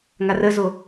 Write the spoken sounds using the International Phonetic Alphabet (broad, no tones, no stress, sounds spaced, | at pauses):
ŋ a r ə z o